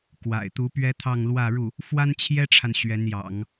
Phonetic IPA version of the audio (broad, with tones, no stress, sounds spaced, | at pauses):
k w a̰˨˩ ɪ̯ t̪ u˧˥ p ɥ ɛ˥ t̪ʰ ɑ˥˧ ŋ l w ä˥˧ ɻ u˥˩ | f w a˥ n t͡ɕʰ j ɛ˥ ʈ͡ʂʰ a˨ n ɕ ɥ ɛ˧˥ n j ɑ̰˨˩˦ ŋ